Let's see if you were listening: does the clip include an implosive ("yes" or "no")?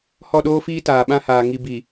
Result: yes